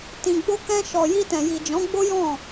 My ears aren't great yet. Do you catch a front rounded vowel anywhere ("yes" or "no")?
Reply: no